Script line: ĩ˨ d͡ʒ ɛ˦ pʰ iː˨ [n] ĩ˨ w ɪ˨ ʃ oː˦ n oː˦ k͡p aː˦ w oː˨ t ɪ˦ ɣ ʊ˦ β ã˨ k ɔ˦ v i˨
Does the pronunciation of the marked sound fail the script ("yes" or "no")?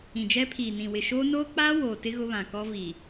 no